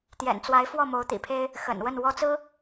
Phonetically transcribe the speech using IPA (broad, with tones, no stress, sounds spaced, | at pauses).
t̪ j ɛ̰˨˩ n t͡s w a˧˥ ɪ̯ f w ɔ˥˩ m o˧˥ ʊ̯ t̪ ḭ˨˩ pʰ e˥ ɪ̯ | x ə̰˨˩ n w ə˥˩ n w ɔ˥ t͡s ɹ̩˥